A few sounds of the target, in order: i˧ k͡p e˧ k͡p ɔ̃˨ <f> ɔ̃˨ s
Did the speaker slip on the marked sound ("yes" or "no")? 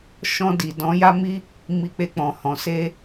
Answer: yes